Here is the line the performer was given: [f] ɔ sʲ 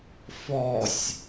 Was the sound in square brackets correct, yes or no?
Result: yes